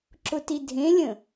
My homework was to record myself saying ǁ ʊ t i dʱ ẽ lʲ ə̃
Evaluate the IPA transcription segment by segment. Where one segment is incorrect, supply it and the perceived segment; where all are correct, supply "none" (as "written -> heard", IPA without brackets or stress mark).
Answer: none